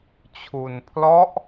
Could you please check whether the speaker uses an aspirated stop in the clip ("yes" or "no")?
yes